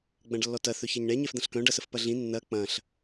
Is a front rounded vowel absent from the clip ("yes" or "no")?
no